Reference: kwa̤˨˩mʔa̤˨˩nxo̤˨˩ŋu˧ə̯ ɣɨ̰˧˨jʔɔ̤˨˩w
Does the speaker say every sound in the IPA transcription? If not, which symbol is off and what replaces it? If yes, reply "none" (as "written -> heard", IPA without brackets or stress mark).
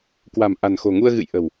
ɔ̤˨˩ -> ə̤˨˩